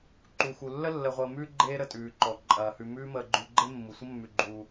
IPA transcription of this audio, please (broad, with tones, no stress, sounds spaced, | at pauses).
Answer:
ǃ u˩ x u˩ lː ə˥ lː ə˨ ʁʷ əː˨ m ʉː˥ ɡ͡ǃ eː˦ ɾ ə˨ tʼ ʉː˩ ǃ ɔ˩ ǃʼ ɐː˩ h ʉ˨ m ʉː˦ m əː˨ ɡ͡ǃ ʉ˨ ɡ͡ǃ e˥ mː u˩ sʷ ə˥ mː ʉ˨ ɡ͡ǃ uː˨